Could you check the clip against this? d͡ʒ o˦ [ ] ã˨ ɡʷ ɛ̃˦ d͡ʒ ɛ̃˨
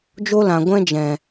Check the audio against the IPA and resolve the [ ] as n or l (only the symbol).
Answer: l